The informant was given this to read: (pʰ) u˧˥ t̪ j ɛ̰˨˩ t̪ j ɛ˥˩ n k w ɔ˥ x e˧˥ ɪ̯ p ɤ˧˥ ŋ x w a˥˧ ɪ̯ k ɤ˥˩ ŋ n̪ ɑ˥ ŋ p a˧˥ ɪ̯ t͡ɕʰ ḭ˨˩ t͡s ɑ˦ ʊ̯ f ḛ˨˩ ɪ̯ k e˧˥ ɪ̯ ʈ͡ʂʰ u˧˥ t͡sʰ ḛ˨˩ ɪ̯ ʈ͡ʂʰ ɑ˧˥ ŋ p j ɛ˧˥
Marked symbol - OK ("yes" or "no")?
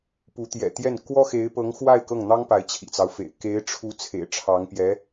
no